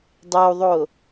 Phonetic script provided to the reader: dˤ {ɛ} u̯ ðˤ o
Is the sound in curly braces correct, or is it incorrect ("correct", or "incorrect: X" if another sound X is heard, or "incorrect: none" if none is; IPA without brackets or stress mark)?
incorrect: e